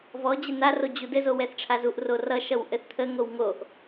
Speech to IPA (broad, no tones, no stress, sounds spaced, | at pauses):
v ɔ d͡ʑ ɘ n̪ a r o d͡ʑ u d ɘ z o w ɛ θ ʈ͡ʂʰ a z u ʔ r o r ʌ ʃ ʌ w ʔ ɘ θ t̪ʰ ə ŋ o w ŋ o ʔ